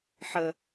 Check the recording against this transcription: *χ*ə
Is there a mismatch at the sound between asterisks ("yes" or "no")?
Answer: yes